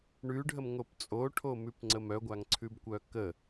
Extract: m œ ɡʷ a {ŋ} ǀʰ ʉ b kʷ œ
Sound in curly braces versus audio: correct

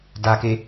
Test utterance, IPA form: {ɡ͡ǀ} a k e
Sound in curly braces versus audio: incorrect: d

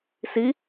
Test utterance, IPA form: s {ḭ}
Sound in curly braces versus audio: incorrect: i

